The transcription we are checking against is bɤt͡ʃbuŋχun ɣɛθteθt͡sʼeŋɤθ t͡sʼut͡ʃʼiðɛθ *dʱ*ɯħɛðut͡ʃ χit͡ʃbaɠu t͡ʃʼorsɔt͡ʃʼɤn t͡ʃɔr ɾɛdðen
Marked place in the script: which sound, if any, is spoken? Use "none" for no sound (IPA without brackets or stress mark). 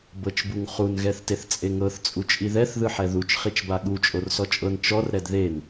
ð